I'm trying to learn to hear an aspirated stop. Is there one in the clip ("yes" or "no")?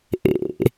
no